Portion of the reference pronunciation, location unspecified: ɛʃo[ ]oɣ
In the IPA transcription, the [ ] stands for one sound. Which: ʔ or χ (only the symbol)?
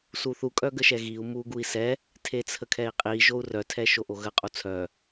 ʔ